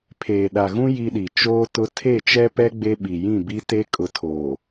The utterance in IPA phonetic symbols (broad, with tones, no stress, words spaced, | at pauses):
pʰeː˨ɗa˨ɣũ˦ ji˦ɗi˨ t͡ʃoː˦tʊ˦ tʰe˦˨t͡ʃɛ˦pɛ˦ ɡ͡be˦ɓi˨jĩ˦˨ bi˦ te˦kʼʊ˨˦tʰoː˨